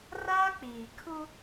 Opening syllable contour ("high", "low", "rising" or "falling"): high